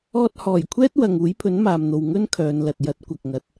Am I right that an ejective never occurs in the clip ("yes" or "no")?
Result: yes